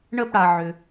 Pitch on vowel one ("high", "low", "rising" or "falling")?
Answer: high